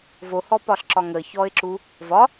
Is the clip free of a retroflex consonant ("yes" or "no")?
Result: yes